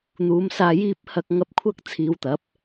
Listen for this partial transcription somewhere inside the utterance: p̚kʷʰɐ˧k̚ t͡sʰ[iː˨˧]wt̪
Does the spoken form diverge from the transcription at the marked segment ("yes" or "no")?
no